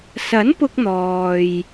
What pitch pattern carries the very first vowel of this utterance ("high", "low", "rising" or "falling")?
rising